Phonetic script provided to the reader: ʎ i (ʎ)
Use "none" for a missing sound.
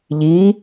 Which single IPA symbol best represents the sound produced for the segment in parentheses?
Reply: none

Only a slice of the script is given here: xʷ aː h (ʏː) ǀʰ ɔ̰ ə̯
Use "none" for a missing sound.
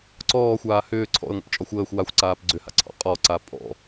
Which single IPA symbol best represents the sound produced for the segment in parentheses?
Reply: ʏː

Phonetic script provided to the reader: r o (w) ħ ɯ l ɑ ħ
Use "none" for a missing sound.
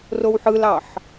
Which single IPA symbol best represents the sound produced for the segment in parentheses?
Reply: w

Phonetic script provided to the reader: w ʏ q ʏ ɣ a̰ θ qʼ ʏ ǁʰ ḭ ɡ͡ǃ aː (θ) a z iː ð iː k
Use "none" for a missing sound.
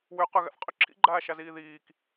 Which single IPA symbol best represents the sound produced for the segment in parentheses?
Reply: ʃ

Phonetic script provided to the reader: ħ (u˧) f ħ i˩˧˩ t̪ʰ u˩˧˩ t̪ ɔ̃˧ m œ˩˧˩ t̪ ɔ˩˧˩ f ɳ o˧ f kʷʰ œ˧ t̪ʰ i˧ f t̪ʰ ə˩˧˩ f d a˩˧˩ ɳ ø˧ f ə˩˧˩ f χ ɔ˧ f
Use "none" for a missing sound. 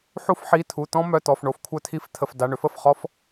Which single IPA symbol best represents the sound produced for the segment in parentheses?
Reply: u˧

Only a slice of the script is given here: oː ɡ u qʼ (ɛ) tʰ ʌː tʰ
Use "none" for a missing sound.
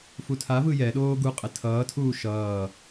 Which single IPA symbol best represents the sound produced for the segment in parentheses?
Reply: ɛ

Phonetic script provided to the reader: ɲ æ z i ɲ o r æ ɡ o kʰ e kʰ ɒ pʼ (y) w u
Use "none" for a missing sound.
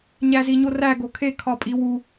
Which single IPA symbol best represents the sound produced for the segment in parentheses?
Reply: i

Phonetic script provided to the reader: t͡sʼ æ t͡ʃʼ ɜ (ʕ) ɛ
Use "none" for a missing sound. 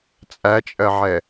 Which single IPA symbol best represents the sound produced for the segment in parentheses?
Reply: ʕ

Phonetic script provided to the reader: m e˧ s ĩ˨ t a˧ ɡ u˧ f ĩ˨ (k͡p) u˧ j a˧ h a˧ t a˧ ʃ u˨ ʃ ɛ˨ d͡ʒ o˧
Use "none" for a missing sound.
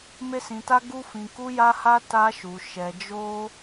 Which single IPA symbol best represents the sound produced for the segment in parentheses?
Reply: k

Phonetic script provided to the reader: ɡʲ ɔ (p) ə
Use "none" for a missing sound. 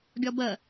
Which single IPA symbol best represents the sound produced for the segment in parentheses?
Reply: b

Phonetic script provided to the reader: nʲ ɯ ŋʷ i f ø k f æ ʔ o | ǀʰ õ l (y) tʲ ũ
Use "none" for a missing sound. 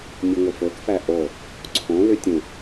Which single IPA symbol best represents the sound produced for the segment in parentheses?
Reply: y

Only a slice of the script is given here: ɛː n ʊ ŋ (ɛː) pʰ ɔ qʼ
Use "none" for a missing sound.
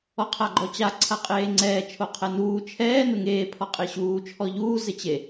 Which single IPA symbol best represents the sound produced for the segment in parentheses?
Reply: eː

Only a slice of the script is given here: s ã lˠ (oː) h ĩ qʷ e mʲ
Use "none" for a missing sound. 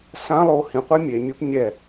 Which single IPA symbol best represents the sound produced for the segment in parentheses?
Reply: oː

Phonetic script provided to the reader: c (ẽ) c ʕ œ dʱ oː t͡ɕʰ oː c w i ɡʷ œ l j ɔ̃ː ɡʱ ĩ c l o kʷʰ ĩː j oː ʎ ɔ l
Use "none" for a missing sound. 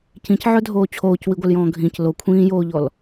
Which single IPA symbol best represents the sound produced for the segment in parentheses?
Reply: ĩ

